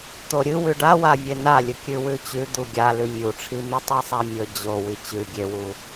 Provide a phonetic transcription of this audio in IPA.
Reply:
t̪ o ɾʲ ɨ w ʉ ɖ a w a vʲ e n a lʲ ɨ kʲ ʉ w ʉ t͡ɕ ʉ d̪ u ɡʲ a l ʉ mʲ u ʈ͡ʂʰ i m i tˤ i sˤ a mʲ ɵ d͡ʑ o w i t͡ɕ ʉ ɡʲ e w u

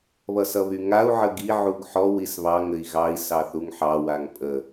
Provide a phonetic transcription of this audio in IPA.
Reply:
β ʌ s ʌ β y ŋ a u̯ ʕ ə ɡ i ʕ u ɡ ħ ɔ w i s β ɑ ŋ ɘ i̯ ɣ ɑ i̯ s ɑ θ u ŋ ħ ɑ w a ŋ pʼ ə

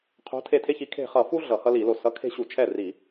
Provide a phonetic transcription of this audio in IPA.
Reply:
qʰ o̤˨˥ tʰ e˧˩ tʰ e˦ ç i˨˥ kʰ e̤˧˩ χ ʌ˧˩˧ f u˦ ɮ ʌ˧˩˧ h ʌ˦ l i˧˩˧ l o˧˩ s ʌ˨˥ kʰ e̤˦ ɕ u˧˩˧ t͡ʃʰ ɛ˥˩ r i˧˩˧

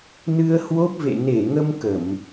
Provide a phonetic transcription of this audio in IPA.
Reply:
n ɨ˧ ə̯ h w o˦˥ p̚ v ḛ˧˨ n e˧˩ ŋ ə˧ m k ə˧˩˨ m

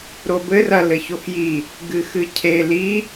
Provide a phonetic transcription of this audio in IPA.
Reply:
ɾ o b ɘ r ɐ l ɘ ç o x j i | ɡ ɨ x ɨ cʰ e l i

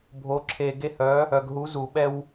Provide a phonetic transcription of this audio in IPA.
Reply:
bʱ o˨˥ ǁʰ e˨ ɡ e˦ h œ˨˥ | œ˨ ɡ ɦ u˨˥ z u˨˩˦ ɓ ɛ˦ w

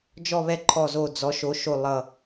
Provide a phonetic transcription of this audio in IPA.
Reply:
d͡ʒ ɔ˦˨ β ɛ˦˨ ǃʰ ɔ˦˨ z o˦˨ d͡z ɔ˨˥ ʃ o˨˥ ʃ o˦˨ lˠ ʌ˦˨

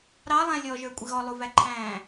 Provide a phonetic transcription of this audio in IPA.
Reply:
ɾ ɑ lˠ æ̃ lʲ ɔ ʒ ə˞ kʷʼ ɪ ɣ ɔ lˠ u v æ ǃʰ æ̃ː

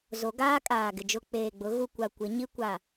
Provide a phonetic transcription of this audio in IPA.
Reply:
z o˨˦ ɡ aː˦ kʼ aː˨ ɡ ɪ˨ d͡ʒ ʊ˨ k͡p eː˨ ɡ͡b ʊ˨˦ ɣ u˨ kʷ a˨ kʷ ɪ˨˦ ɲ i˦ kʷ a˨

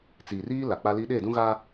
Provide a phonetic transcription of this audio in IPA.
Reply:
t͡s iː˨ r iː˦ l a˨ k͡p a˦ l i˦ ɗ e˦˨ d ũ˦ ɣ aː˦

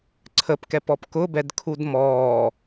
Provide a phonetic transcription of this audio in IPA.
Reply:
ǀʰ ə p k ɛ p ɔ p k ʊ b ɛ d kʰ u d m ɔː

